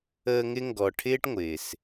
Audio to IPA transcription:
əː˦ ŋ ɪ˥ ŋ ɡ ɔ˨ ʈʰ ɪː˥ ʈ ŋʷ ɪː˩ s

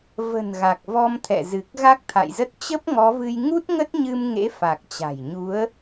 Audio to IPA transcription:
v ə̤˨˩ n ɣ a˨˩ k̚ v ɔ˧ m t̪ʰ ɛ̰˧˨ z ɨ˨˩ k̚ ɣ a˦˥ k̚ t̪ʰ a̰˧˨ j z ə˦˥ t̚ t͡ɕ ə˦˥ p̚ ŋ ɔ˨˦ v ɨ˧ j ŋ u˦˥ t̚ ŋ ə˦˥ t̚ ɲ ɨ˧ m ŋ ḛ˧˥ f a˨˩ k̚ t͡ɕ a̤˨˩ j ɲ u˨˦ ə̯

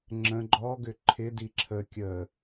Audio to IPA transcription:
ŋ͡ǁ ə̃ ɡ͡ǃ ɔ ɡ ʏ ǃʰ ɪ d i ǁʰ ə kʲ ə

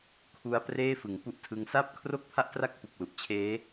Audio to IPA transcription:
kʰ u˦˥ a̯ p r eː˥˩ f ɯ˩˦ ŋ p u˥˩ ʔ tʰ ɯ˦˥ ŋ s a˥˩ p̚ kʰ r o˥˩ k̚ pʰ a˥˩ ʔ t r a˥˩ k̚ p u˨˩ k̚ l u˨˩ ʔ t͡ɕʰ eː˦˥

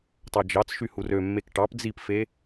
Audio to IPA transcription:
tˤ ɑ d͡ʒ ɑ t͡s ʃ y h u r ø mː e k ʈ ɑ p d͡z i p f e

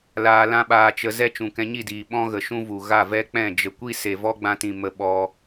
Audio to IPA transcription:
l aː˧ l ã˦ ɓ aː˧ t͡ʃ ə˧ z ɛ˦ t͡ʃ ũ˨ k ɛ̃˧ ɲ i˦˨ d iː˨ ɓ ɔ̃˦ ɣ ə˨ ʃ ũ˦ v u˨ ɣ a˦˨ v ɛ˦ k͡p ɛ̃˦˨ d͡ʒ ə˨ kʷ i˦ s e˨ v ɔ˦ ɡ͡b ã˧ t ĩ˨ m ə˧ ɓ ɔ˧

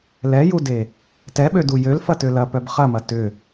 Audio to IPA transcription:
l ɛ j u d e | t ɛ ɓ ø d u j ø l f ɐ t ø l ɐ p œ b χ ɐ m ɐ t ʏ

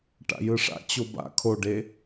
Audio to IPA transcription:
ʈ a̰ j ɯ ʂ a̰ t͡ɕ o b a̰ kʰ o ɖ e

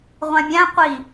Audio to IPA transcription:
ʁʷ æ̃ mʲ æ̃ qʷ i

